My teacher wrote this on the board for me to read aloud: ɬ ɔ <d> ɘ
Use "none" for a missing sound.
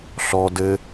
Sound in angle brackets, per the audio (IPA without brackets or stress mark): d